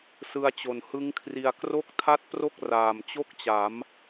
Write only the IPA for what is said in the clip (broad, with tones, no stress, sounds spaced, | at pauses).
s ɯ˧ a̯ t͡ɕ o˨˩ n h ɯ˦˥ ŋ kʰ r i˧ a̯ k r o˥˩ k̚ tʰ a˥˩ t̚ p r o˥˩ k̚ r aː˨˩ m t͡ɕ o˥˩ k̚ t͡ɕ a˩˦ m